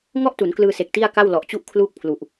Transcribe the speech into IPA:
ŋ ɔ˥˩ ʔ t u˩˦ n k l ɯː˧ s e˨˩ k̚ t i˥˩ a̯ k a˥˩ w l ɔ˨˩ ʔ t͡ɕ u˥˩ ʔ kʰ l uː˥˩ k̚ pʰ l u˨˩ ʔ

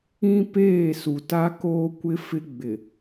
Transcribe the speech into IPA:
ĩ˦ p eː˦˨ s u˨ t a˦ k oː˦ kʷ ɪ˦ f ɪ˦ ɡ͡b ɪ˨

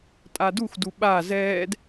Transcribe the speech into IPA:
tʼ a d u x d u ɓ a z ɛː d

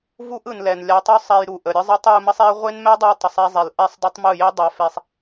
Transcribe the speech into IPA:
v u˦ ʔ ɯ˨ n l ɛ˨ n lʲ a˧ tˤ u˦ sˤ ɛ˧ j ɾ u˨ ʔ ə˨ ɾʲ ɯ˦ zˤ ɯ˦ tˤ j u˧ m ə˦ sˤ e˦ ɐ̯ ʁʷ e˦ n m ɛ˦ dˤ ɯ˧ ɐ̯ tˤ ə˨ sˤ ɛ˧ zˤ e˨ l ʔ ɛ˦ sˤ dˤ ə˦ tˤ m ɯ˦˨ j e˦ dˤ a˧ f e˧ sˤ

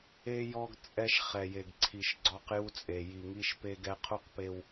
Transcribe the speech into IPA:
e˦ j ɔ˦ ɡ t͡sʼ ɛ˦ ʃ χ ɛ˨ j e˨ ɡ ǀʰ i˨ ʃ ɡ͡ǀ ɔ˦ q j u˦ t͡sʼ e˨ j i˨ ŋ i˦ ʃ p e˦ ɡ ɛ˦ qʰ u˦ q p e˦ w

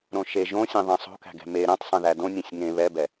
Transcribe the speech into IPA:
ɾ õ ʃ e ʒ õ sʲ ẽ ðˤ ẽ sˤ o̤ k æ̤ ɡ ɛ̤ m e ɾ ɛ̃ tˤ sˤ ɛ̃ ð æ d õ nʲ ẽ sʲ ŋ ẽ β ɛ b ɛ

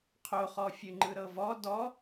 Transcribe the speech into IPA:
qʰ o χ ɔ fʲ ɯ ŋ͡ǃ ɯ ɾ ɤ v ɔ d ɔ

